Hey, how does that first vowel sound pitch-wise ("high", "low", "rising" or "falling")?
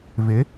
rising